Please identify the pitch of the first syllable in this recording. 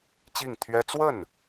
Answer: falling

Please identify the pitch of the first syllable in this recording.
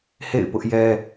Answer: falling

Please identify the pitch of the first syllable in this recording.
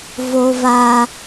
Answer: high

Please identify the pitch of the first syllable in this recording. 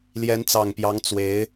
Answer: rising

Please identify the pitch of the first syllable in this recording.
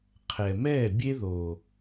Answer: low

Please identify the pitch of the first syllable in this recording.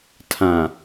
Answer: low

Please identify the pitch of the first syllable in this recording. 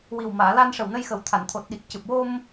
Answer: low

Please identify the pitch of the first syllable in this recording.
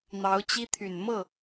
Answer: rising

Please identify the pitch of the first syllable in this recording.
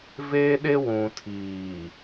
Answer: high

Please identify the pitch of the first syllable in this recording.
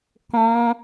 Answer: high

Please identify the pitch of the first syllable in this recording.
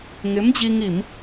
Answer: rising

